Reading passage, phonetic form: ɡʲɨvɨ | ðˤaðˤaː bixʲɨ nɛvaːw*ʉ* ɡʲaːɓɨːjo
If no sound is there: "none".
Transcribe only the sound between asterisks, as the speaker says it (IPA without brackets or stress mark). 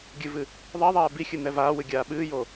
ɨ